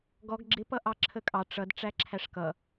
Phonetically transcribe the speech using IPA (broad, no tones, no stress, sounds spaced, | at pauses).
ɡ ɔ ɡ ɡ͡ǁ ɪ p ʌ ʔ ɑ ǁʰ ə kʼ ɑ ʈ͡ʂ ʌ d ʈ͡ʂ æ ǁʰ æ ʂ k ʌ